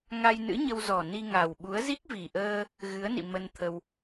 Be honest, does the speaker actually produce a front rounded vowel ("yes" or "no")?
no